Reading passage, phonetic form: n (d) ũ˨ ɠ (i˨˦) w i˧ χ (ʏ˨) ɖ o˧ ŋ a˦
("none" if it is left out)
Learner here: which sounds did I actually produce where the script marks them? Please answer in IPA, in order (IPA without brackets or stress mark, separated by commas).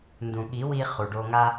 d, i˨˦, u˨